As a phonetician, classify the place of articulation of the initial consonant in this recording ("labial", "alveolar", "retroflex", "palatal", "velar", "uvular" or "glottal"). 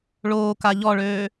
retroflex